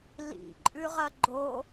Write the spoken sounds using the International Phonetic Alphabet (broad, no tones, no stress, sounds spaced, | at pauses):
l ḭ ǃʼ ʉ ʁ ɐ ɡ͡ǃ o